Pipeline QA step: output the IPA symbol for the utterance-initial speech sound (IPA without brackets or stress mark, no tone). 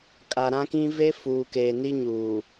kʼ